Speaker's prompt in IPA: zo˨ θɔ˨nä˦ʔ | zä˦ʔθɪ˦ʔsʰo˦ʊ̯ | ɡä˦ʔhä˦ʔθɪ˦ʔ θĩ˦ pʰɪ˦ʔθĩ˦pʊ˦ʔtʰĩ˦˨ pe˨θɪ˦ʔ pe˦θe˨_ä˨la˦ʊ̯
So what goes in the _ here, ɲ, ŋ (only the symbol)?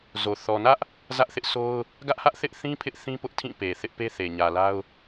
ɲ